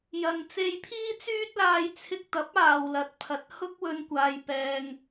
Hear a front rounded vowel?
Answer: yes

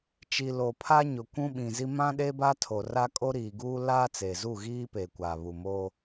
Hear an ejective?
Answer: yes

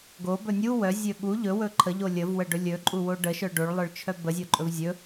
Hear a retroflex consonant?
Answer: yes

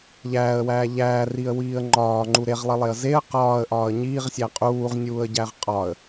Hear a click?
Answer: yes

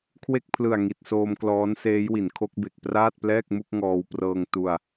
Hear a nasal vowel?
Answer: no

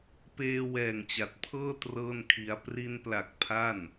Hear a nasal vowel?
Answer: no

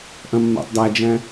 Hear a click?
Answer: no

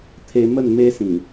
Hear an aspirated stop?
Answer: yes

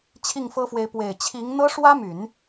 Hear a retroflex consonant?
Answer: yes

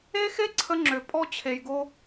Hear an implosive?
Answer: no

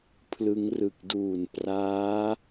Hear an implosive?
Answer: no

